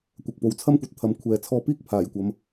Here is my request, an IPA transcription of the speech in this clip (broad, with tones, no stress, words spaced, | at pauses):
kʷɐ˨k̚po˨˧wt͡sʰɐ˥mkʷɐ˨t̚ t̪ʰɐ˨mkʷʰɛː˨ t͡sʰɔː˧piː˥k̚pʰaː˨˩jkʷɐ˨˧m